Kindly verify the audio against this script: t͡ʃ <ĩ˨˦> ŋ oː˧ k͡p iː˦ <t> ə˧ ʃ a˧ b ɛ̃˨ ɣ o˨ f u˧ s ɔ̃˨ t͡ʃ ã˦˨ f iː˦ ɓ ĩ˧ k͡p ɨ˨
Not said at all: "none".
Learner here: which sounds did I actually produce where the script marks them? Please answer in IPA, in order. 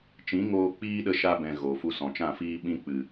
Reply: ĩ˨˦, ɗ

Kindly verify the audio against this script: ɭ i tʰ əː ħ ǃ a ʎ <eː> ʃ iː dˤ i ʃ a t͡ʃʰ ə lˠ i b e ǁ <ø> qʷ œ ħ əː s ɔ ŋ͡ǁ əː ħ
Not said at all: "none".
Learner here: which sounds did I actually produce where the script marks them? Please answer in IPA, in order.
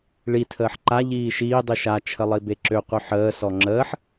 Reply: iː, ø

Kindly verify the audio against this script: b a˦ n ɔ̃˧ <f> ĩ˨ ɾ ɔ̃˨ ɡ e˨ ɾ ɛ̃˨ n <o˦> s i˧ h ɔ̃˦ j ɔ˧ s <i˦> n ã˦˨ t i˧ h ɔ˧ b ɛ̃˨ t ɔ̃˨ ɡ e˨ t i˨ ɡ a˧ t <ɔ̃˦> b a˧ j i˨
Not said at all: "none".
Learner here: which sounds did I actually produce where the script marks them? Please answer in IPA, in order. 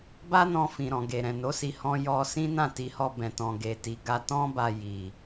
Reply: f, o˨˦, ĩ˦, ɔ̃˦

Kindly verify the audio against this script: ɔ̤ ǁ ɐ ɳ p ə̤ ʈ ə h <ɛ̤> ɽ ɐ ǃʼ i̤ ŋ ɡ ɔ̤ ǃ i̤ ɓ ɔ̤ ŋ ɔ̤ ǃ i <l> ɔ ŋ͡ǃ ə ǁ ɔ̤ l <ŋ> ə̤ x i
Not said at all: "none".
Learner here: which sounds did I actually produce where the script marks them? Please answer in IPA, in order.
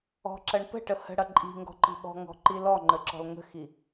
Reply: ə̤, l, ŋ

